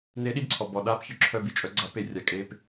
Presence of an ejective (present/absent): present